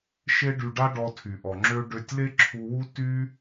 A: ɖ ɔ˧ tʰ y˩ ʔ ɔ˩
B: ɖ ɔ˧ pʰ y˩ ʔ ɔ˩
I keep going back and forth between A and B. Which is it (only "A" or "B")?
A